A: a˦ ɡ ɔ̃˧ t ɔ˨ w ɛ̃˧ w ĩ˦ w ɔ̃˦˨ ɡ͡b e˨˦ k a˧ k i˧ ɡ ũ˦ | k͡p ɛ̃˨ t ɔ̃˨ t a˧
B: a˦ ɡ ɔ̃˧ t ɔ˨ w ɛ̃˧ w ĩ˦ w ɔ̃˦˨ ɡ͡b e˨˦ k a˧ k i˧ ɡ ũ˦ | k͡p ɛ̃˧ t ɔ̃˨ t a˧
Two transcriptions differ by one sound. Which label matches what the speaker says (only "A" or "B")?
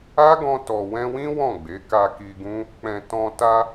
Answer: A